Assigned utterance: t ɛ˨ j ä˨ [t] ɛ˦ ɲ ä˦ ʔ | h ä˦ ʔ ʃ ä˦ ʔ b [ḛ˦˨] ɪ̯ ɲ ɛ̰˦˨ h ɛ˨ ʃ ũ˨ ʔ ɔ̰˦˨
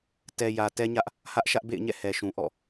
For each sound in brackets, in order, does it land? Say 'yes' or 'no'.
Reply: yes, yes

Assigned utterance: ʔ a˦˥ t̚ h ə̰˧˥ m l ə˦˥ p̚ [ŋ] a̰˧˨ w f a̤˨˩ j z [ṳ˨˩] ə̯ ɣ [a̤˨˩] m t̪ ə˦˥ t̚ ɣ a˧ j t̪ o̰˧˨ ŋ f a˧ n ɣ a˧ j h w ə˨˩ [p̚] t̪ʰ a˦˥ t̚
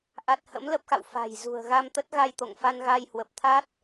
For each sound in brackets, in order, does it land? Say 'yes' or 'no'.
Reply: no, yes, no, yes

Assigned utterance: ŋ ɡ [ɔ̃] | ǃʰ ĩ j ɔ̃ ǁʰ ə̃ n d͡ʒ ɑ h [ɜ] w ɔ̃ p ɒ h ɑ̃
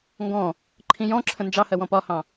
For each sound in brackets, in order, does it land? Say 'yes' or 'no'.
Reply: yes, yes

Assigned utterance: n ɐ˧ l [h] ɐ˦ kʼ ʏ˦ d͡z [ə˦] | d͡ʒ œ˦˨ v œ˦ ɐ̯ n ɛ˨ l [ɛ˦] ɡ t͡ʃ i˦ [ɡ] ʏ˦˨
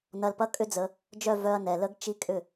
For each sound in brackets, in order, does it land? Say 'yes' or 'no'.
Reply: no, no, no, no

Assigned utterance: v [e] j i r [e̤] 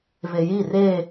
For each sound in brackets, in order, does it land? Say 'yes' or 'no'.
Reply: yes, no

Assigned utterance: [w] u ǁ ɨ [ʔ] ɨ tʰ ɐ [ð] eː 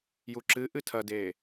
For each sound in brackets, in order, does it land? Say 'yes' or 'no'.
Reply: no, yes, no

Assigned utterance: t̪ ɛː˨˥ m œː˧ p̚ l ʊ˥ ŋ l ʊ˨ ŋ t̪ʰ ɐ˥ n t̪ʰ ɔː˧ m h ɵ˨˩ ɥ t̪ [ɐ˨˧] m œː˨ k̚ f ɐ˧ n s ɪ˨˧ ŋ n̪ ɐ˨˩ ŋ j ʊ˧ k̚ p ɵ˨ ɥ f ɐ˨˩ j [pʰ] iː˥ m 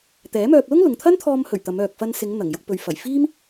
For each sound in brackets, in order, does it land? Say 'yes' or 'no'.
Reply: yes, no

